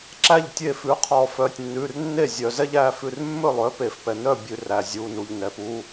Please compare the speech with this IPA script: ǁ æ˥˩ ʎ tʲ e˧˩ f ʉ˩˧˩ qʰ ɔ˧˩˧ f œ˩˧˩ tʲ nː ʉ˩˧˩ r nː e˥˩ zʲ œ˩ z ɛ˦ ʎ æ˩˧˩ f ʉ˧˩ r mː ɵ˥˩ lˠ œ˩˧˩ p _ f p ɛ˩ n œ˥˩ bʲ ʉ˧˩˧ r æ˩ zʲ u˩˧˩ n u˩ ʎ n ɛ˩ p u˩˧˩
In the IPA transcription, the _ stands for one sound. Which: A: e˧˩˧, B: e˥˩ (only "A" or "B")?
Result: A